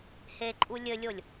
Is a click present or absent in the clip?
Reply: present